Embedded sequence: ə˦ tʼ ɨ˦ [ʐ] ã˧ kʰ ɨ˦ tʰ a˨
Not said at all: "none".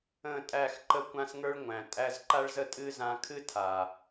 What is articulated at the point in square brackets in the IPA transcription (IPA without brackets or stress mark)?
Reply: z